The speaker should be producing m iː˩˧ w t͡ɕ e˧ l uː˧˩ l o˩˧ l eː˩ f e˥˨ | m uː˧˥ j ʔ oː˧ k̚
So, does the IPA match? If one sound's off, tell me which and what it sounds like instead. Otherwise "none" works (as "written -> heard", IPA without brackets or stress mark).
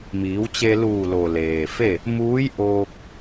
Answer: o˩˧ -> o˩